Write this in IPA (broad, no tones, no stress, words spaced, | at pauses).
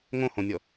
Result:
ŋõhõnʲɔ